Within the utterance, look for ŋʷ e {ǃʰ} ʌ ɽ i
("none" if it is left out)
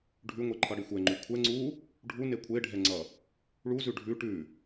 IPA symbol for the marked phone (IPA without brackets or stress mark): ǃʰ